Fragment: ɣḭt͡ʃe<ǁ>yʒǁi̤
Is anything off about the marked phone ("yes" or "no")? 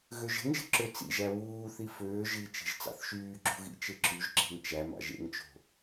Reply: no